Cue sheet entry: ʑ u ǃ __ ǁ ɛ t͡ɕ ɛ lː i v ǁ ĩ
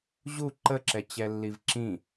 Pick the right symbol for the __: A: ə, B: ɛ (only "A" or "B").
A